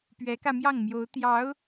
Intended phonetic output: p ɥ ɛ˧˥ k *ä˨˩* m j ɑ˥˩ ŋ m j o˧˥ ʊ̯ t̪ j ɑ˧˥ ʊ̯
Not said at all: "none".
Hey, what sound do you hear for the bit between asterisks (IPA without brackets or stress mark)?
ä˧